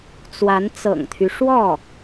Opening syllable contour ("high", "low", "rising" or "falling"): rising